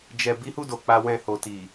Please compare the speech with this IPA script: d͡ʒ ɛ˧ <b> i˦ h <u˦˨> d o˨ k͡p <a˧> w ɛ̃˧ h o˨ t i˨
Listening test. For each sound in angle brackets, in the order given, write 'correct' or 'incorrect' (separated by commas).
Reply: correct, correct, correct